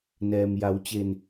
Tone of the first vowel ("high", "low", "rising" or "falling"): low